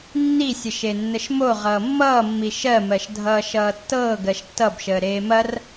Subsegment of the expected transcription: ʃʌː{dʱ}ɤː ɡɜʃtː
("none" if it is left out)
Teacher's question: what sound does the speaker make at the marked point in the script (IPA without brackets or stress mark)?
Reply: tː